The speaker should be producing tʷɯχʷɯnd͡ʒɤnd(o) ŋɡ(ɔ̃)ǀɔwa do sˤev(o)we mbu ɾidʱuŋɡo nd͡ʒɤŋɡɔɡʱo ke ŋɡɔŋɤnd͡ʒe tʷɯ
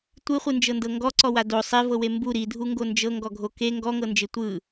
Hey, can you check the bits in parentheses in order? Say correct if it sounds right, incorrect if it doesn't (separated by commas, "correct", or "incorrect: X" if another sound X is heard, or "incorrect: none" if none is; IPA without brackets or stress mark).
incorrect: ɤ, incorrect: ɔ, incorrect: ɤ